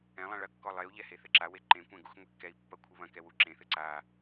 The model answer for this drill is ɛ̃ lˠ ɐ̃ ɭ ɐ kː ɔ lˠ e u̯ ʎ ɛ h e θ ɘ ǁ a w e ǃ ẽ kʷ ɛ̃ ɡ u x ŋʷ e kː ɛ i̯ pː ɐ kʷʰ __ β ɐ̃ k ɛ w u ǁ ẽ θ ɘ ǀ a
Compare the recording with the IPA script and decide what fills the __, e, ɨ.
ɨ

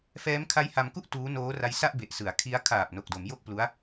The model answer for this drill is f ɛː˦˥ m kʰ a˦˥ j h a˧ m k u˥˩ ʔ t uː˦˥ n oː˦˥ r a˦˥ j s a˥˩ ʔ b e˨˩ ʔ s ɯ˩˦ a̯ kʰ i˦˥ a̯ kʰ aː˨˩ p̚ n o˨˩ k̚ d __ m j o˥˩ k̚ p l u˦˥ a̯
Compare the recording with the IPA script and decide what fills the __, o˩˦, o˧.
o˩˦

